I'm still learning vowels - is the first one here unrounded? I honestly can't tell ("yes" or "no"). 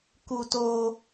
no